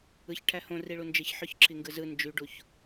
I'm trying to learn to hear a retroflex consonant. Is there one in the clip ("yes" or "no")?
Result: yes